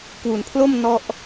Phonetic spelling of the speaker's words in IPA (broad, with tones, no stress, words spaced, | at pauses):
kwu˩˦npʰlo˥˩m nɔ˥˩ʔ